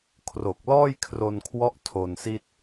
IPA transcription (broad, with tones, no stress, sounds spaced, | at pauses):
kʰ r o˨˩ k̚ l ɔː˥˩ j kʰ r o˧ n kʰ w ɔ˦˥ ʔ tʰ o˧ n s i˥˩ t̚